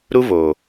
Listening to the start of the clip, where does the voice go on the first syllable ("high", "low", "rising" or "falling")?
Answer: high